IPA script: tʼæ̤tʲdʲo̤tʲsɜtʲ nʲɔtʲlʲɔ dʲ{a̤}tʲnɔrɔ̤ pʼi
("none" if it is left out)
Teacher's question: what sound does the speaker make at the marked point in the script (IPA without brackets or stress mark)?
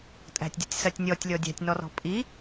æ̤